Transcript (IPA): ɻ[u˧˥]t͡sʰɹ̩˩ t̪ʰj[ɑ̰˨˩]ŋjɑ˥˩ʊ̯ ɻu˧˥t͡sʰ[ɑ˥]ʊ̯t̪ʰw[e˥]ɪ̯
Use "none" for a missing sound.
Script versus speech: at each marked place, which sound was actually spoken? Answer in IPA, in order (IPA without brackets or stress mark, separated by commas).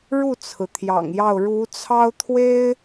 u˥˩, ɑ̰˨˩, ɑ˥, e˥